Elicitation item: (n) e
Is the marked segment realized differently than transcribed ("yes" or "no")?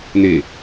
no